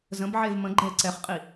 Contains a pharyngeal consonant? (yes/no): yes